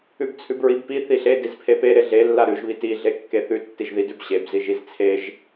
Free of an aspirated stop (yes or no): no